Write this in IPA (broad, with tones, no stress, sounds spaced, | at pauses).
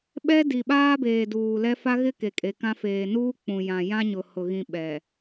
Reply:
ɓ ɛ˦ d i˨ ɓ aː˦ b eː˨ d uː˨ l ɛ˦ f a˦ ɣ ɪ˦ k e˨ kʼ e˨ k ã˦ f eː˨ n uː˦ k͡p ũ˨ j ã˨ j ã˦ ɲ ʊ˨ h ʊ˨ ɣ ĩ˨ ɓ ɛ˨